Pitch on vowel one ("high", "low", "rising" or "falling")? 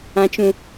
low